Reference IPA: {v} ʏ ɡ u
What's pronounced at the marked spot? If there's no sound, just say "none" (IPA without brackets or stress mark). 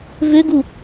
v